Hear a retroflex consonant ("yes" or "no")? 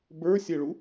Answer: yes